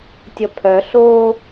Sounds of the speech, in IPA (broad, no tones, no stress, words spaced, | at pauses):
tʲʌpʰœɬoː